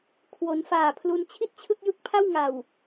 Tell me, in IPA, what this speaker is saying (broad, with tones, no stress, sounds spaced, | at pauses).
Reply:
kʰ w o˩˦ n f aː˨˩ pʰ l u˧ n t͡ɕʰ i˥˩ t̚ t͡ɕʰ ɯ˥˩ k̚ j ɯ˦˥ k̚ pʰ a˥˩ w ŋ a˨˩ w